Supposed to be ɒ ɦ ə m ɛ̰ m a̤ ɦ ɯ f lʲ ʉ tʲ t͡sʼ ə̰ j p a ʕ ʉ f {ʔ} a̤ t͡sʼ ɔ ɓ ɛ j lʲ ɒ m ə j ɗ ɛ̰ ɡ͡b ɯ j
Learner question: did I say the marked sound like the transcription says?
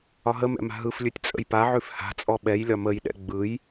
no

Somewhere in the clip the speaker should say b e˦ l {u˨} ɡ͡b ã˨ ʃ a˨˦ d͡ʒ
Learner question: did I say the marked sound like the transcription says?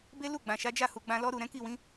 no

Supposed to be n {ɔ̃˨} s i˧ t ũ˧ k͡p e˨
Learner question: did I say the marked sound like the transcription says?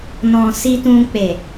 yes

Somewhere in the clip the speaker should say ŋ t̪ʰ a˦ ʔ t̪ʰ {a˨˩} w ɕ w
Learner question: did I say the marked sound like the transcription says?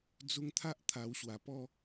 yes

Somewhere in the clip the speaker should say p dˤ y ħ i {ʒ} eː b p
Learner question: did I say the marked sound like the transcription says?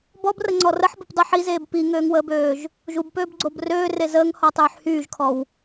no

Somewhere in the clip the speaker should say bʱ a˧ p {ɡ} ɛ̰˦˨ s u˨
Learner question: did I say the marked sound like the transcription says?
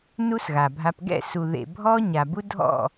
yes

